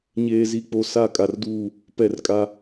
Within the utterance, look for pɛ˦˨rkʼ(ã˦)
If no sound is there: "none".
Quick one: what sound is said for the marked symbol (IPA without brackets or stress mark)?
a˦